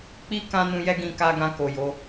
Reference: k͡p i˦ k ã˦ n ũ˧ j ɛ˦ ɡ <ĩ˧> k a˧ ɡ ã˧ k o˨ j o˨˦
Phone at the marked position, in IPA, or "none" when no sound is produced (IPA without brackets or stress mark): ĩ˧